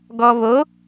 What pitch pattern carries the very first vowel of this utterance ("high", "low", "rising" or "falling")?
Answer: low